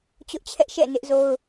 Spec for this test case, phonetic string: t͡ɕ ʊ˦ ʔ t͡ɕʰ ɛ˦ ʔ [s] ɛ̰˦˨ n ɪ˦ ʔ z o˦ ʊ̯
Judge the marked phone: incorrect: ʃ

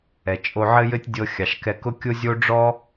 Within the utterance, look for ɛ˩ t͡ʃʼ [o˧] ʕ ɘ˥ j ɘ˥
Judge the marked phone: correct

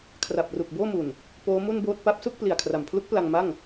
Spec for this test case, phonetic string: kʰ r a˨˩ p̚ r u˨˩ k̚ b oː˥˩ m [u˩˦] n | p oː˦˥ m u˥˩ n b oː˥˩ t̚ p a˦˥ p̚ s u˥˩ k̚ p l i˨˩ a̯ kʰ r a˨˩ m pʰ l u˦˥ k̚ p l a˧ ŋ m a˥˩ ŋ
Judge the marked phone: incorrect: u˨˩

